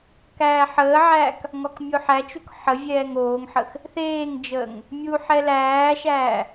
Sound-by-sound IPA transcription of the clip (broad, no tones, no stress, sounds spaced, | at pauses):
k æː ħ əː ʕ æː k | ŋ ɔ k mʲ o ħ æ t͡ʃ u k ħ ə vʲ ɛː ŋ oː ŋ ħ ə x | θ eː ŋ d͡ʒ əː ŋ | mʲ u ħ ɛ l æː ʃ æː